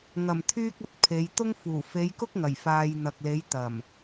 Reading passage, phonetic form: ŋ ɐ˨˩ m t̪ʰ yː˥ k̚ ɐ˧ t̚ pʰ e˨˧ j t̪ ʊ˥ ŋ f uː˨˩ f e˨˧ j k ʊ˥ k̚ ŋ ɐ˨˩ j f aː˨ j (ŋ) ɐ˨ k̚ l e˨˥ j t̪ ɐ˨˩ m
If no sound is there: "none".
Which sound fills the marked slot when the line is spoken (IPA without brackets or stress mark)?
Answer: n̪